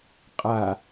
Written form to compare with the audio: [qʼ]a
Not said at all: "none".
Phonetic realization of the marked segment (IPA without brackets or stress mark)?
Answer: qʼ